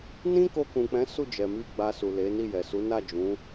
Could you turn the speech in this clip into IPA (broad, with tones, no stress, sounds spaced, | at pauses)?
n ĩ˦ k o˧ k ũ˨ k͡p ɛ̃˨˦ s u˦˨ d͡ʒ ɛ˨ m i˧ ɡ͡b a˧ s u˨ l e˨˦ n i˦˨ j ɛ˨ s u˨˦ n a˦˨ d͡ʒ ũ˨˦